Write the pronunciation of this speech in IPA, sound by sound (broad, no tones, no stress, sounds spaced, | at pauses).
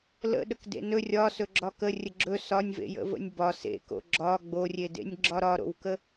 l ə̰ ɗ ə k d ḛ n ɵ rʲ ɒ s ɵ ɡ͡ǁ ɒ k ə rʲ ə ɡ͡ǁ ɵ s ɒ nʲ v ḛ j ə̰ v ə̰ nʲ b ɒ s ḛ k o̰ ɡ͡ǁ ɒ ɡ͡b o rʲ e d ḛ nʲ ɡ͡ǁ ɒ ɾ ɒ ɾ o̰ w k ə